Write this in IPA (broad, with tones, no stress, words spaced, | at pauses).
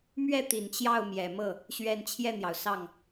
mɥɛ˥˩ t̪i˨˩nt͡ɕjɑ˥˩ʊ̯mjɛ˨˩mɤ˥˩ | ɕɥɛ˥˧n t͡ɕʰjɛ˥˩n̪jɑ˩ʊ̯ sɑ˥˩ŋ